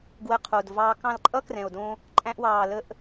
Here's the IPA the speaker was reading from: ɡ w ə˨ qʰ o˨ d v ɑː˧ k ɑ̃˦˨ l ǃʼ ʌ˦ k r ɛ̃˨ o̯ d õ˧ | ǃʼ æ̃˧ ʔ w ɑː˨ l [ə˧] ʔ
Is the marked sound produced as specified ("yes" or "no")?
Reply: yes